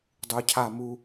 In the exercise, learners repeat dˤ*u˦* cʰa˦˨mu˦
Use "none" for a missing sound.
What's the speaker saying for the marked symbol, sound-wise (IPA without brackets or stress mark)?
u˨